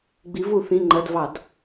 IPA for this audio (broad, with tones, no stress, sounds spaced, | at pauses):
ɡ͡b i˩˧ v u˧˩˧ θ ĩ˩˧˩ ŋ͡ǃ ɜ˩˧˩ d v ɑ˧˩˧ d